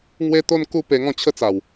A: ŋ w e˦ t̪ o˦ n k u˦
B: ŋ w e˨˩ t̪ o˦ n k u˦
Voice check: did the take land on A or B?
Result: A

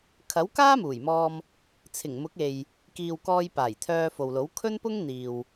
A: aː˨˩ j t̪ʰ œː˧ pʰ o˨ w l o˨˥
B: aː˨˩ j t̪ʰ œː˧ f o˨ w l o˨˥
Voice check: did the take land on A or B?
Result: B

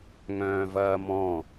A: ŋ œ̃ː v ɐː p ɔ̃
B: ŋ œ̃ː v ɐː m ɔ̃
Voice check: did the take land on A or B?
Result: B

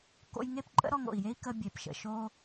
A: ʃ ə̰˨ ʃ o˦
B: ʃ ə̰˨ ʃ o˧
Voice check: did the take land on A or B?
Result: A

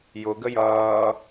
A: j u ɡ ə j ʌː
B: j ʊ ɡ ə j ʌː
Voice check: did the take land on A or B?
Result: B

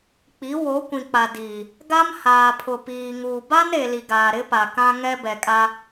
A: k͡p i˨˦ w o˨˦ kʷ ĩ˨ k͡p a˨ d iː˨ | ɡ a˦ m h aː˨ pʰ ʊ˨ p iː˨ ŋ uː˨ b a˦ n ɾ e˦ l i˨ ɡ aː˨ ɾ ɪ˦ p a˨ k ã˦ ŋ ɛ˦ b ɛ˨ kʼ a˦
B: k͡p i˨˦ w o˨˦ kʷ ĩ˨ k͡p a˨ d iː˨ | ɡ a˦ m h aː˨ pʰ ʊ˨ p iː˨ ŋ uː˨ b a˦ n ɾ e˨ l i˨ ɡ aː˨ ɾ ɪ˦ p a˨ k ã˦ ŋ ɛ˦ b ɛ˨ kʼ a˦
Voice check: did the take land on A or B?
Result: B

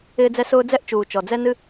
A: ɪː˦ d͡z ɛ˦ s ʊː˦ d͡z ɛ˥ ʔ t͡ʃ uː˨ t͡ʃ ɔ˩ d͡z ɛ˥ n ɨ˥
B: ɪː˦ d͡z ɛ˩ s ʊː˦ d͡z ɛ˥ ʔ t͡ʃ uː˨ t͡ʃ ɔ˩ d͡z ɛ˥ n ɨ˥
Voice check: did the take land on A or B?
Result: A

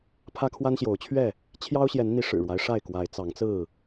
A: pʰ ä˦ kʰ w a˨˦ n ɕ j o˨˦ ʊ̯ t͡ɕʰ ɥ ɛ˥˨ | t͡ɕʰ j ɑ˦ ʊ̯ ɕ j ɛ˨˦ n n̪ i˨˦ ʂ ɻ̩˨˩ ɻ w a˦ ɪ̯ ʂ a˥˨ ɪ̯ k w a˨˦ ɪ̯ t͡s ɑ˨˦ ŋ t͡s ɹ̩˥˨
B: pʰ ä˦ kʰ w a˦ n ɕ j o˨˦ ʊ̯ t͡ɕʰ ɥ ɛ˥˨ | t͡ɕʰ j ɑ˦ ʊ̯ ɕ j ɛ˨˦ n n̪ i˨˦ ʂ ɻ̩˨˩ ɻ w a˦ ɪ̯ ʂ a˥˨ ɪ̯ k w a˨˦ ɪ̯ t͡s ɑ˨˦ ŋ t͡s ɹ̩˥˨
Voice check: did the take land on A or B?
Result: B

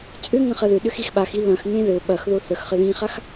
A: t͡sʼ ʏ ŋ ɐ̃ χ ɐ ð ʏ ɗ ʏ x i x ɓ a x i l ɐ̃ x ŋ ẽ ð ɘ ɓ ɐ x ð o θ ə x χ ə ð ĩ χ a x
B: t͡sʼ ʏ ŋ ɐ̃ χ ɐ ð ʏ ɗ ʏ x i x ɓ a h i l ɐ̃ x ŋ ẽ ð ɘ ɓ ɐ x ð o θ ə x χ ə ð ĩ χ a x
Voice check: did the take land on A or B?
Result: A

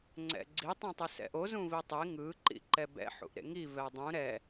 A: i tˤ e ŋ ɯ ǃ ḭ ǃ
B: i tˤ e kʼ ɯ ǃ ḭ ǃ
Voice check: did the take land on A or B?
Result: A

